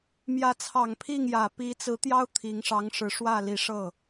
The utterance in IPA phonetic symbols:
mjä˧˥t͡sʰɑ˨˩ŋ pʰi˥˩ŋ jä˨˩pi˧˥t͡sɹ̩˧˥ t̪jɑ˥ʊ̯ t̪ʰi˧˥ŋ ʂɑ˧˥ŋʂɻ̩˧˥ʂwä˥˩li˧˥ ʂɤ˥˩

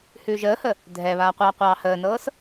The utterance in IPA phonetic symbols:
hʉːʒəːhə | dʱɛβaː qʷɑːqʷɑːhəːnɤːs

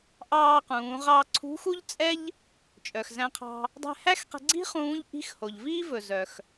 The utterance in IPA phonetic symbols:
ʔɑː˧qũː˩˧ʁɑ˧ ǀʰṳ˧˥xu˥ʎt͡sʼɛ˥ʎ | t͡ʃʼœ˩xzæ̃˧qʰɑ̤˧ | dˤɛ̤˧hæ˥xqɛ̤˧ɡ͡ǀi̤˥ χũː˧˥ʎ ʔi̤˧˥xho˩ʎviː˥vɵ˩ zœ˩x

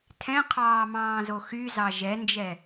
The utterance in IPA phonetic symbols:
tʰɛ̃qʰɑːmɑ̃ːzo xyzɑ ʒɛnd͡ʒɛ

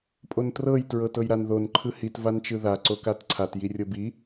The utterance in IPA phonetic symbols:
pʼontrɤj tɹɤtɤjɾanðon ǃʰɯhit vant͡ʃɯða ǀokatǀʰat jirʲɤbi

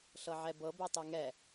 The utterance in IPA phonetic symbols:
ɬɤʕɛbɤ betˤɛŋɛ

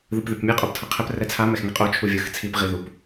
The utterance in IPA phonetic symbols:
ðɯpðepmʲɛ qʼoptʰʌqʰɛp rɛt͡sʰa mɛxŋɛqʼo t͡ʃʰuvʲɯx t͡sʰip ʁiðup

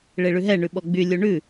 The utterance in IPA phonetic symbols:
ɭeɭʉɦɛ ɳʉɓɔɡ͡by lʲuɳʉ

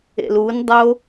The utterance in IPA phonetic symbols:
ḛlundˤo

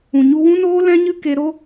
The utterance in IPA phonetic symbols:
ũ˨ɲu˧wũ˦noː˦ lɛ̃˦ɲɨ˦ ke˧ɾo˦

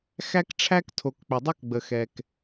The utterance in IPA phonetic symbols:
xæ˥k ʈ͡ʂʰæ˥ktʰo˧k k͡pʏ˧dˤo˥kɡ͡bə˧ xɛ˧k

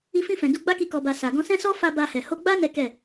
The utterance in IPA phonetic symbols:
i˧fĩ˧fɛ̃˨ du˧ɡ͡ba˦ki˧ kɔ˧ba˧ sa˨ɡɔ̃˧sɛ̃˦sɔ˦ fa˧ ba˧hɛ˨ ho˧ɡ͡ba˦ nɛ˦kɛ˦˨

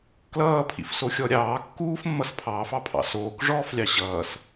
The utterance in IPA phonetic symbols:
klʌːpʰḭfsoxʲɔ ɾʲɑː kːuːfmːʌs pʰɑːfɑpʰɑ̰ soːkʐɔːflʲɑ ɕʌːs

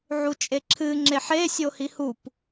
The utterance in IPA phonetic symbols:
ʕut͡ʃʼeǁʰɨ ŋ͡ǁeħe sʲohihup

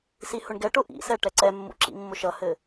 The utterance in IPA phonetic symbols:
sihʊɳɡɛʈʊ ʔḭsɛ ʈɛǀɛmːṵ ǁḭmːʊʃʌhɘ

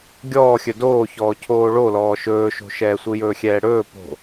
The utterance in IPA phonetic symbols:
ɡʲɔːxʲɵ doːçɔː cʰoːɭolɔː ʃɵːʃo̤ʃɛː sʷɯjɵːxʲɛːɽɵː po̤

